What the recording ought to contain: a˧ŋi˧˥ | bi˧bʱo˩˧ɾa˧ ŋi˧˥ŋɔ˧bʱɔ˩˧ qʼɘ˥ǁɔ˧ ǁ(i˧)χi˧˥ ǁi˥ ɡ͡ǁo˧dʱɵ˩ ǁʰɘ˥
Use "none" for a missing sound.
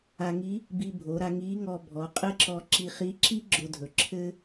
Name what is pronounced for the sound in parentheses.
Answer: i˧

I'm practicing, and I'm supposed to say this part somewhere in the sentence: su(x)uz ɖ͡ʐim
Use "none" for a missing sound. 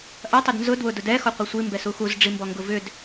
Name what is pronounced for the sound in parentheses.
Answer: x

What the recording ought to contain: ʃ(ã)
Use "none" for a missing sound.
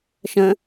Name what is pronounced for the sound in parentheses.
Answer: ə̃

